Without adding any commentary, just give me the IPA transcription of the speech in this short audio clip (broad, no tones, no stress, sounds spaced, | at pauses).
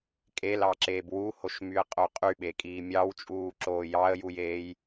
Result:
kʼ e l ɑ ǁ eː b w u h o ʃ m y ə̯ qʼ o qʼ y ɓ e kʼ iː mʲ ɑ w t͡ʃʼ uː ǁ oː j ɑ ə̯ j u j eː j